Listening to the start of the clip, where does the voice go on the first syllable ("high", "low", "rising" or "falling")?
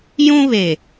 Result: high